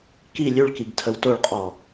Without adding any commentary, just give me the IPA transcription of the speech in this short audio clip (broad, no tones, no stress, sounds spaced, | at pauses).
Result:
k i lʲ ʉ ɭ k i ɡ tʰ ə w t o ɭ qʼ ɔ